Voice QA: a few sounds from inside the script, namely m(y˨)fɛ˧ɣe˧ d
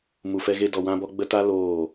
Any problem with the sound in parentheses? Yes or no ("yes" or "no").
yes